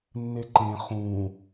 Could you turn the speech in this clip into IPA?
nː e ǃ ẽ χ ũː

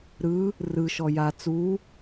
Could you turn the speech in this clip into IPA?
ɾ ɯ | r ɯ ʃ ɔ j a t͡s u

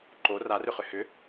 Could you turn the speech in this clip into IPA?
ǃ o r a r ʏ χ ʏ h ʏ

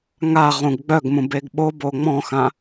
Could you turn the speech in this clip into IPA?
ŋ a ʁ ũ ɡ ɡ͡b œ ɡ m ũ b e ɡ ɓ o b o ŋ͡m ɔ̃ x ã

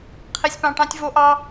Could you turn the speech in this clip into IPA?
qʰ i˧ sʲ p ɑ̃˧ ʈ ɑ̃˦ tʲ v o˦ ʔ ɑ˦

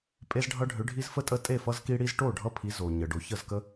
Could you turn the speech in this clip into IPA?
pʼ e˦ z ɖʱ ʌ˦ ɖʱ ʏ˨˦ ɖʱ i˦ z f ə˥˩ tʼ ə˥˩ tʼ e˥˩ f ʌ˦ z k i˦ ɽ i˦ z ʈ o˥˩ ɖʱ ʌ˦ pʰ i˨˦ z o˩ ɲ ə˩ ɖ o˨˦ ç ə˥˩ z k ə˦

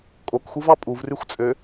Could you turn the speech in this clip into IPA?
kʼ o k xʷ ɯ v ɑ pʼ u v r y xʷ t͡sʼ ø

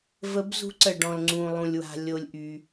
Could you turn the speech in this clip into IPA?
v ə˧˥ b z ṳ˧˥ ǀ ə˨ ɖ ɔ̃˨ l ŋ͡ǀ ũ˨ lˠ ũ˨ lʲ w a̤˨ lʲ o˨ lʲ ʔ y˨

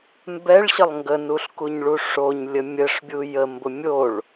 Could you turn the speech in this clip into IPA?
m b ɛ ɭ ɕ ə lˠ ŋ ɡ ə n u ɬ k u ɲ ɭ u ʂ o ɲ lʲ ə mʲ ə ʂ bʲ u j ə m b ʊ mʲ o ɭ

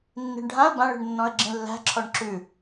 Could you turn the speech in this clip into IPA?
nː i̤ ɳ ɖʱ ã ə̯ b ã ɭ i̤ ɳ nː ɔ̃ ə̯ ɡ͡ǁ ĩ lː æ̤ ǁʰ ɔ ɳ ǁ ʉ

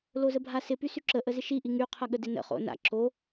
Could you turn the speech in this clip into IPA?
l o z ə bʱ a s ɪ p y s y ǁ ə ʔ ə z ɪ ʃ i ʔ i ŋ y qʰ ɐ ɠ ə d ɪ n ə̰ χ o̰ n a̰ ǁ o

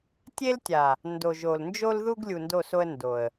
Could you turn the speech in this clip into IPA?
tʲ e˦ l tʲ a˨ | n d o˨ ʒ o˨ l n d͡ʒ o˦ l ð u˦ ɡ lʲ u˨ n d o˦˨ s o˦ ə̯ n d o˨ ə̯

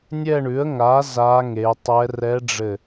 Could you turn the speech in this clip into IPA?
nʲ ɛ˥˧ ɳ ʉ˩˥ ə̯ ŋ a˩˥ z a˧˥ ŋ e˩˧ tˤ ɛ˧˥ r ɛ˧˥ ɖ͡ʐ ɘ˧˩

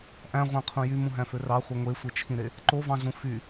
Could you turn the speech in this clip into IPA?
ʔ æ̃ ʁʷ æ̃ qʰ ũ j y m ũ ɦ æ̃ f ø r ɑ χʷ e ŋʷ e sʷ e t͡ʃʰ ĩ ɾ e | ǃ o v ɑ̃ ɮ ũ f y

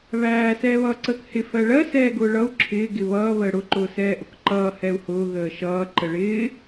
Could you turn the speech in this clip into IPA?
β æː s ɛː β ʌː ǀ əː k h ɪ f ɜ ɭ ɜ s ɛː ɡ ʊː ɭ ʌ u̯ ǁʰ ɪː ɡ ɪ β ʌː β əː ɽ ʊ ǃ ʊː s ɛː ʔ ʊ k ǃ ʌː h ɛ u̯ h ʊː ɣ əː ʃ ʌː ǃ ə ɭ ɪː

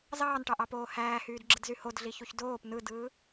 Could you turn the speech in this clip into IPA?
z ɑː n ʈ ɑ ʔ ɑ p oː h æː h yː d ɡ͡ǁ ɯ d z y h o d ɮ i ç u ç d oː p n ɯ d ɯː

